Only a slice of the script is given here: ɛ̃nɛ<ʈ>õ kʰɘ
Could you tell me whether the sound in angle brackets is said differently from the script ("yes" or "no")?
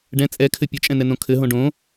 yes